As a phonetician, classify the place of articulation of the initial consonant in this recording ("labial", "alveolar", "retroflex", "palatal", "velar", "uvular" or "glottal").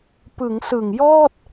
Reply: labial